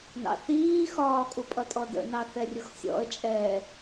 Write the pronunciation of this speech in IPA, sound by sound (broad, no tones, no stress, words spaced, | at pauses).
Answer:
nɑ̰θiː xɒːkʼupʼʌtʼɔ də̰nɑθɛrʲʊx sʲɔ̰ə̯t͡ʃʼɛː